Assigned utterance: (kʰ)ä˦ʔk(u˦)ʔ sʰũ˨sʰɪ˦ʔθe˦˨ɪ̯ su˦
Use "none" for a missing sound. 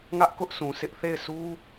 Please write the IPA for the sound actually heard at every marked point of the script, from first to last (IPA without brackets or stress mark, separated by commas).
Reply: ŋ, ʊ˦